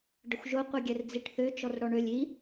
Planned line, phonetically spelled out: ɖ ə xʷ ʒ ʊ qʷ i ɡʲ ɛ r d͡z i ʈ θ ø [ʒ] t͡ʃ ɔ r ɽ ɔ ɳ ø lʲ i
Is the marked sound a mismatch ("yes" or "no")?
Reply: yes